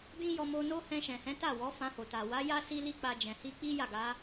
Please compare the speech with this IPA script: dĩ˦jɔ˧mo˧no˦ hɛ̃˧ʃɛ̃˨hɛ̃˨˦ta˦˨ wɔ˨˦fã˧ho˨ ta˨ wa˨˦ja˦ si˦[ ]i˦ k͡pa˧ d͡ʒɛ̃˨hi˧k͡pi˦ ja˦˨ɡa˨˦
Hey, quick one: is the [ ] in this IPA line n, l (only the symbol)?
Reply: l